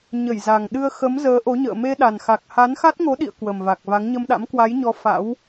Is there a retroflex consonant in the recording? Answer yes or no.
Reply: no